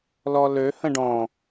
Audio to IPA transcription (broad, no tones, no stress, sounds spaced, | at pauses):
l ɔ l ø h ə̃ ɖ ɔ̃